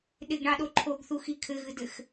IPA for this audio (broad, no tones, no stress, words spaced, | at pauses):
ɗɪɡɳɑɗo ǃʰoɡθuxi kʰɘɣɨdɘx